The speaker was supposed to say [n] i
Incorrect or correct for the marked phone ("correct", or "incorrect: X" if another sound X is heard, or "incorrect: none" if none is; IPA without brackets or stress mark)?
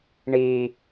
incorrect: ɳ